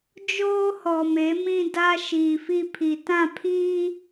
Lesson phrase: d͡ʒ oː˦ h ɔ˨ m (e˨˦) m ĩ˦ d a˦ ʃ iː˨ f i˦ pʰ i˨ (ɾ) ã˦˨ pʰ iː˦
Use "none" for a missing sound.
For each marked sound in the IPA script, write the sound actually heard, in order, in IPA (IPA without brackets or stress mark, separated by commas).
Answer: e˨˦, t